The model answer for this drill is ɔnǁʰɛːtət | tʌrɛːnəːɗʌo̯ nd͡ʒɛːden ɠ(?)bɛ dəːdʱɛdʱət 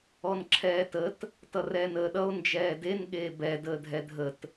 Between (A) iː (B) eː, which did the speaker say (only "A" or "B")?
B